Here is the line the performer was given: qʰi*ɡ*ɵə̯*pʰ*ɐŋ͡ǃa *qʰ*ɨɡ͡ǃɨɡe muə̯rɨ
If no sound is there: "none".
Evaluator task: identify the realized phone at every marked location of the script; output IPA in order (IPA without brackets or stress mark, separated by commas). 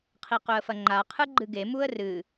q, f, qʰ